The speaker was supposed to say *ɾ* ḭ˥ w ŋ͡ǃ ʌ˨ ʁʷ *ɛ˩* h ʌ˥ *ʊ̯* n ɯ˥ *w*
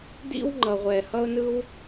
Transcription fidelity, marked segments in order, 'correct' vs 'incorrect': incorrect: d, incorrect: ɛ˨, correct, correct

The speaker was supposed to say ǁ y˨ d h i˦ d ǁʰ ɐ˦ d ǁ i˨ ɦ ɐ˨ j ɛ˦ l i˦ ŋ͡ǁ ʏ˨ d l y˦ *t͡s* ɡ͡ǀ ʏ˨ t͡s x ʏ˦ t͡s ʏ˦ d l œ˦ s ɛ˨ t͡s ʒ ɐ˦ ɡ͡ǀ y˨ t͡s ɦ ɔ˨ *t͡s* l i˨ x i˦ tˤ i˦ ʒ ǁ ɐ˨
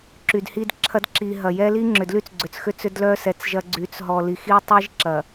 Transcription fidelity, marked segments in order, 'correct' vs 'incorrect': correct, incorrect: none

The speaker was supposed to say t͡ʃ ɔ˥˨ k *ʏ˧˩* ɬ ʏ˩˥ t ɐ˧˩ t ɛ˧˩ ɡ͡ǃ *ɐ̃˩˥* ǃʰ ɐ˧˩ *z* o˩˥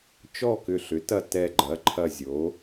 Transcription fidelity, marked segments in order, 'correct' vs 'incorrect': correct, incorrect: ɐ˩˥, incorrect: zʲ

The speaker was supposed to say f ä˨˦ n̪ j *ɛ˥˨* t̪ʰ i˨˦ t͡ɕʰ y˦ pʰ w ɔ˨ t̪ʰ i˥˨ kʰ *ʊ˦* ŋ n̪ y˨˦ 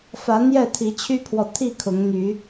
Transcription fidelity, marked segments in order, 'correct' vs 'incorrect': correct, incorrect: ʊ˨˦

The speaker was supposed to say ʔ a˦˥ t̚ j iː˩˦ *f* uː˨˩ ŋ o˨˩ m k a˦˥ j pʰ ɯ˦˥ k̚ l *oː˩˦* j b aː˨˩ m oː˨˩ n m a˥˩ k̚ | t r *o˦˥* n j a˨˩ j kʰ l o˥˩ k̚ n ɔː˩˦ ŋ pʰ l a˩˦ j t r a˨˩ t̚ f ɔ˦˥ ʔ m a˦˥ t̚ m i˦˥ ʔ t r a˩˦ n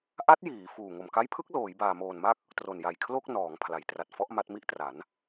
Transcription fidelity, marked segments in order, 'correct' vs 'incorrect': correct, correct, incorrect: o˨˩

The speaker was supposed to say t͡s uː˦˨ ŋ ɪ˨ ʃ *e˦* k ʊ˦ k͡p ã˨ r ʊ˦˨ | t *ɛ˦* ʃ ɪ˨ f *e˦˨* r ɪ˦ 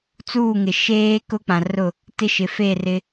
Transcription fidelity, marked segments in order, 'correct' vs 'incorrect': incorrect: eː˦, incorrect: ɪ˦, correct

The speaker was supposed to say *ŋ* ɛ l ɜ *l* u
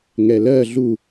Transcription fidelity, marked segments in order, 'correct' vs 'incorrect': correct, incorrect: ɮ

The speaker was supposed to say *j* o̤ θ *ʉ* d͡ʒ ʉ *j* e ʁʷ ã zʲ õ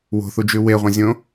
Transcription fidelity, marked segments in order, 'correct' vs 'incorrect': incorrect: w, incorrect: u, incorrect: w

